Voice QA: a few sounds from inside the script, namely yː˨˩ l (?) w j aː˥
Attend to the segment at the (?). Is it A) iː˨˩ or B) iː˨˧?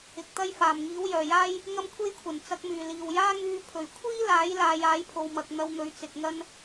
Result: A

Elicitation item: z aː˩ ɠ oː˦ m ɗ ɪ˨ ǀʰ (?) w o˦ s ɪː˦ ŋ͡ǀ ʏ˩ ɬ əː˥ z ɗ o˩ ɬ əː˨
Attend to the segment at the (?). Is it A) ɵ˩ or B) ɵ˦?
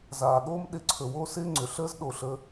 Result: A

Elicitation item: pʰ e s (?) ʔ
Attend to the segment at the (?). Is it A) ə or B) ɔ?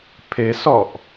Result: B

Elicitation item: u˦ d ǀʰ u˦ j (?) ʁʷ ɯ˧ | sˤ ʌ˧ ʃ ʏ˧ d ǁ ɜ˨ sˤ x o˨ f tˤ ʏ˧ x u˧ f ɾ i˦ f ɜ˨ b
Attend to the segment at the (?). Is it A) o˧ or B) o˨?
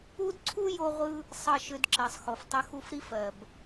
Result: A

